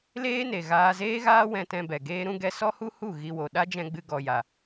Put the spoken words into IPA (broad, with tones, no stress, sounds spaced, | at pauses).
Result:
l eː˦ n e˨ ɣ aː˧ z eː˦ ɣ aː˦ w ɛ̃˧ t ɛ̃˧ b ɛ˨ ɡ eː˦ ɾ ũ˦ ɡ ɛ˦ s ɔ˦ h u˦ h u˦˨ ɣ i˧ w o˨ ɗ a˦ d͡ʒ ɛ̃˧ ɡ͡b ɨ˧ ɡ ɔ˨ j a˨